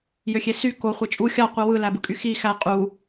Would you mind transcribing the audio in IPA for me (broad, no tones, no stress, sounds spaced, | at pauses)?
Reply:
j ø xʲ e s y k o χʷ e t͡ʃʼ u xʲ ɑ qʷ ɯ w ɯ l æ b ɯ kʼ y x i x æ qʼ u